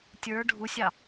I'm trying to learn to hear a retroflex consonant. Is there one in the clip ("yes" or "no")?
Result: yes